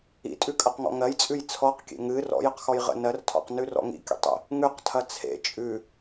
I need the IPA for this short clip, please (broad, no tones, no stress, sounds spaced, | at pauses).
ḭ tʼ ʉ kʼ ɐ q ŋ ɔ̰ ŋ ɜ j t͡sʼ ʉ j t͡sʰ ɔ q kʲ ḛ ŋ ɨ r ɔ̰ j ə q x ɔ j ʁ ə̰ n ɜ r tʰ ɔ̰ q n ʉ r ɔ̰ ŋ ḭ kʲ ə̰ tˤ ə̰ | ŋ ʉ q tʰ ɐ t͡sʰ ḛ t͡ʃʼ ʉ